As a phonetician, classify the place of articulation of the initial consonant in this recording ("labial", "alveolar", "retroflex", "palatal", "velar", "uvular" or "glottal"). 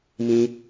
labial